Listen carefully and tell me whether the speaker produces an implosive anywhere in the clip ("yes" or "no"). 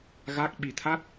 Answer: yes